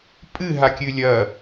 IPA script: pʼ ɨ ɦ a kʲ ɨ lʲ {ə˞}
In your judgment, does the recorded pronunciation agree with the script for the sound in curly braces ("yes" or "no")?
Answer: no